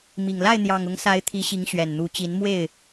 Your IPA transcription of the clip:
m i˨˩ ŋ l a˥˨ ɪ̯ n̪ j ɑ˨˩ ŋ ʊ˨˦ ŋ s a˨˦ ɪ̯ t̪ʰ i˨˦ ɕ i˨˦ ŋ ɕ ɥ ɛ˨˩ n n̪ u˨˦ t͡ɕ i˨˦ n m w e˥˨ ɪ̯

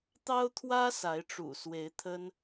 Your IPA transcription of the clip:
t̪ ɑ˥ ʊ̯ t̪ʰ w ä˥ s a˧˥ ɪ̯ ʈ͡ʂ ṵ˨˩ s w e˧˥ ɪ̯ t̪ʰ ə˥ n

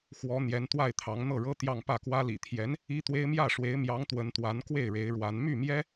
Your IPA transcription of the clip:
x w ɔ˧˥ n̪ j ɛ˧˥ n t̪ w a˥˩ ɪ̯ t̪ʰ ɑ˧˥ ŋ n̪ ɤ˥˩ ɻ ɤ˥ t̪ j ɑ˥˧ ŋ p ä˥˩ k w ä˥ l ḭ˨˩ t̪ʰ j ɛ˧˥ n | i˥ t̪ w e˥ ɪ̯ m j ä˥˩ ʂ w e˧˥ ɪ̯ m j ɑ˧˥ ŋ t̪ w ə˧˥ n t̪ w a˧˥ n k w e˥˩ ɪ̯ ɻ e˧˥ ɪ̯ ɻ w a˧˥ n m y˥˩ m j ɛ˥

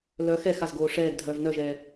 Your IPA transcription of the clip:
l œ x ɛ x a z ɡ oː ʂ ɛː ɡ dʱ œː v n œ ʒ ɛː

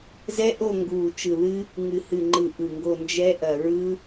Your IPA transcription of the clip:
z ɛ˦˥ ʔ o˦˨ ŋ ɡ uː˨˩ t͡ʃ ɯ˨˩ ð ɨ˦˥ | ŋ ɨ˨˩ h ɨ˨˩ ŋ͡ǃ ɯ˨˩ ʔ ɯ˨˩ ŋ ɡ o˦˨ n d͡ʒ ɛ˦˥ ʔ ɐ˨˩ ɹ ɯ˦˥

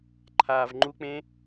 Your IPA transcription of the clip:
ǃʰ aː v ŋ͡ǃ u k͡p ẽ

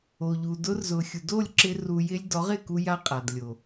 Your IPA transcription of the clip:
o˨ ʎ u˨ d ʊ˧ r z ʊ˨ xʲ u˨ d o˦˨ lʲ ǁ ɪ˧ r u˨ j ɪ˧ lʲ d ɔ˨˦ ʁ ɪ˦˨ k u˧ j a˦ qʼ a˨ d lʲ o˨

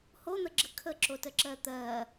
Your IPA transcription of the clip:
h o n̪ ə ɡ͡ǁ ə kʰ ə ǁ o t ə ǁ ɜ t̪ ɜ

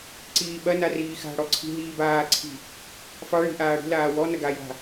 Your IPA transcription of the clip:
ǀ iː ɓ ɐ n a r iː x a̤ ɽ ɔ ǀʰ i̤ ɦ iː b aː ǀʰ i̤ | f ɑ ɭ i̤ ʔ aː ɽ i̤ l aː w ɔ n ɐ ɡ a j a̤

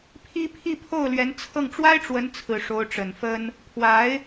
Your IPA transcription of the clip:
pʰ i˥ pʰ i˥˧ pʰ o˥˩ ʊ̯ l ɥ ɛ˧˥ n t͡sʰ ɤ˥˩ ŋ ʈ͡ʂ w a˥ ɪ̯ ʈ͡ʂ w ə˧˥ n t͡sʰ ɹ̩˨˩ ʂ o˧˥ ʊ̯ ʈ͡ʂ ə˨˩ n f ə˥ n | pʰ w a˧˥ ɪ̯

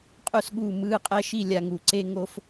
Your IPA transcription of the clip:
qʼ u˥ s ɠ uː˥˧ m ɯː˥˧ qʼ ɛ˥ ʃ i˥˧ lʲ a˥ ŋ u˥ ǀ e˥ ŋ o˥ f

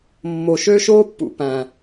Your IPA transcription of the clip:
mː o˨ ʃ ø˦ ʃ oː˦ pː ṵ˨ p æ̃˨

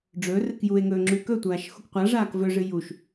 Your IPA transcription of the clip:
ɖ͡ʐ ɵ r ɨ k j u e̯ ŋ ɵː ŋ͡ǁ ʉ k ɵ tʷ aː ʃ x u k qʷ a ʐ aː k v ɵ ʐ ɨ j u ʃ

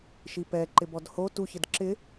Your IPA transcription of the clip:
ʃ i p ɛ ǃ ɪ b ɔ d h o t u ç ɪ d ǁ ɪ

